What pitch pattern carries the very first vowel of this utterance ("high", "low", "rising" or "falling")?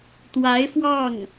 rising